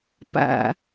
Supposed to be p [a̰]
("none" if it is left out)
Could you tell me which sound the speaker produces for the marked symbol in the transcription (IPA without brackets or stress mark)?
a̰